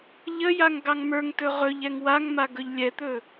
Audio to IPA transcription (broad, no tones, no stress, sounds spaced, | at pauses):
ʎ ə j a ŋ ɡ ɑ ŋ m ə˞ ŋ t ɵ ʁ ɵ ʎ ɛ ŋ w a ŋ m a ɡ ɵ ʎ lʲ ɛ t̪ ɵ